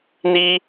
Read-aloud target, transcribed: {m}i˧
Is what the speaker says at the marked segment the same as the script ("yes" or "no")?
no